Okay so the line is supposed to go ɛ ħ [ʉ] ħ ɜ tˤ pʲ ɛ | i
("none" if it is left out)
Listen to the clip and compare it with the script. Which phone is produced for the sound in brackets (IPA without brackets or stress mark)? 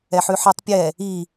ʉ